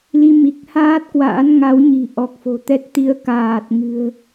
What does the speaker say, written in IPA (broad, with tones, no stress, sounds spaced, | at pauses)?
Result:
l i˧ m i˨˩ k̚ h aː˦˥ t̚ k w a̰ː˧˥ n ŋ a˨˦ w ɲ i̤˨˩ ʔ ɔ˨˩ k̚ f o̤˨˩ t̪ ɛ˦˥ t̚ t̪ i˨˦ ə̯ k aː˨˩ t̚ ŋ ɨ̤˨˩ ə̯